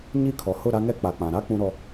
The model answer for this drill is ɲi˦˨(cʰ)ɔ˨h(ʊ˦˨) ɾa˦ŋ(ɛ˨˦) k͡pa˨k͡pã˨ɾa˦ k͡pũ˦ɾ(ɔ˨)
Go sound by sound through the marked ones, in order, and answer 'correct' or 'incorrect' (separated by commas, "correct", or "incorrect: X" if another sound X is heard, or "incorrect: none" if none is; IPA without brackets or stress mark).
incorrect: kʰ, correct, incorrect: ɛ˦, incorrect: ɔ˦